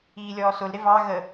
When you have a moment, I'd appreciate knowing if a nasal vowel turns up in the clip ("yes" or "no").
no